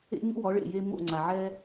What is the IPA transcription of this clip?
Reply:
ḛ˥ ɲ ṵ˥ w ɔ˩˥ ɭ ḛ˩ j e˧ m o̰˥˩ ŋ͡ǀ a˩ ʕ ɛ˥

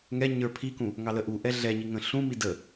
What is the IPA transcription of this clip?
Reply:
ŋ ɛ ɲ ə˞ pʰ i k ũ | ŋ ɑ l ə ʔ u ʔ ɛ ɮ ɛ ɲ i ŋ ə̃ ɬ ũ m i d ə

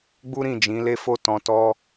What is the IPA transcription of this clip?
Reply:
ɡ͡b u˦ ɾ ĩ˦˨ d͡ʒ ĩ˨˦ l e˦ f o˦ t ɔ̃˧ t ɔ˦

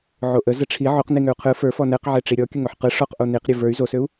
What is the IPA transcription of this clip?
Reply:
ʕ o ʔ ə z ə ʈ͡ʂʰ i ʕ o q n i ŋ ø u̯ qʰ ɯ f ə˞ f ɔ n ɛ q ʕ ɛ ʈ͡ʂ i ɾʲ ɔ kʲ ə ŋ o ħ q ɯ ʂ ɔ q ʔ o n i q ɾʲ ɯ v ə˞ y̯ z o s ø u̯

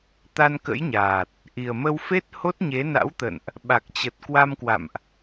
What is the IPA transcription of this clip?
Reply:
t̪ a˧ n k ə̰˧˥ j ɲ aː˨˩ t̚ | ʔ i˨˩ ə̯ m ə˧ w f e˦˥ t̚ h o˦˥ t̚ ɲ e˨˦ n a̰˧˥ w t̪ ə̰˧˨ n ʔ | ɓ a˨˩ k̚ t͡ɕ ə˨˩ t̚ k w a˧ m k w a̰˧˨ m ʔ

